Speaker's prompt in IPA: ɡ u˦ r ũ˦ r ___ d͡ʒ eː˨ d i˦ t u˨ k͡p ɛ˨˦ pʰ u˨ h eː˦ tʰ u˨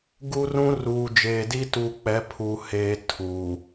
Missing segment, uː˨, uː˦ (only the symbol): uː˨